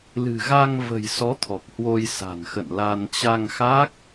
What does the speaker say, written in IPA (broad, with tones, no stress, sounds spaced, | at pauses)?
l ɨ̤˨˩ ɣ a˧ ŋ v ə̤˨˩ j s ɔ˨˦ t̪ʰ ɔ˨˩ k̚ h w o˧ j s a̤˨˩ n x ə̰˧˨ n l a˧ n t͡ɕ a˧ ŋ x a˦˥ k̚